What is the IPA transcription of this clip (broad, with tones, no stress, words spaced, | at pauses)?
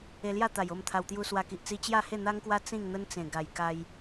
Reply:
e˧lja˥˧t̪a˨˩j o˥˧mt̪ʰa˧wt̪ju˦ swa˧ki˨ʔt͡si˦ t͡ɕja˥˧he˥˧n̪a˦ŋkwa˦ t͡sĩ˥˧ŋn̪ə˦nt͡sẽ˨˩ ɡa˨˩j ka˧j